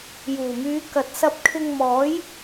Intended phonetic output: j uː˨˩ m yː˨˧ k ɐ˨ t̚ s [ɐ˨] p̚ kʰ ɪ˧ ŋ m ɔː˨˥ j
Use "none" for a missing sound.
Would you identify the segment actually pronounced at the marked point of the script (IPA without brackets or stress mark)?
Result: ɐ˧